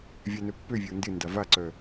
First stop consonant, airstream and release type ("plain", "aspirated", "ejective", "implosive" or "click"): plain